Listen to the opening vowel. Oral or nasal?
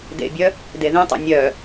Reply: oral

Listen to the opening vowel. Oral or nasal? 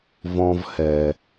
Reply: nasal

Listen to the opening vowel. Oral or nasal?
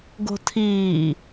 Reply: oral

